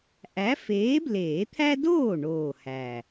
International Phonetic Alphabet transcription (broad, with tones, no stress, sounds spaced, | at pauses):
ʔ æ˨˥ f eː˨˥ b l eː˨˩˦ t̪ʰ æ˦ d oː˥˩ ɳ oː˨˩ h æ˨˩